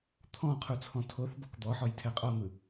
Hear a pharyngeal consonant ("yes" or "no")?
yes